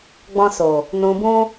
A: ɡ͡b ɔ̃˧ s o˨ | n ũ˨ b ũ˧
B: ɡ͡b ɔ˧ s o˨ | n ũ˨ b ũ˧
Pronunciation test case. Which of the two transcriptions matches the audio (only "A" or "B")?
A